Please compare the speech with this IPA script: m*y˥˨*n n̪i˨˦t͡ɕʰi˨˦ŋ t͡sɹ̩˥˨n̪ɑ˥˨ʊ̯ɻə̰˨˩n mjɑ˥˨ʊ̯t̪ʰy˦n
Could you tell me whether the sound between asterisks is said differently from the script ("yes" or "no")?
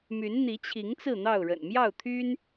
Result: yes